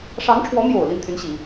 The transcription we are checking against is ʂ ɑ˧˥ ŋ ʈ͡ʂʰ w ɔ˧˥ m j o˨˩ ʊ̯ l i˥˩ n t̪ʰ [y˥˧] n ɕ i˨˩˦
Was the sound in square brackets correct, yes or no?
no